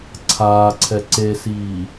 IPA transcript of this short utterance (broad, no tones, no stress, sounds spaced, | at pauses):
ǀʰ aː ǀʰ ɛ ǀ e s iː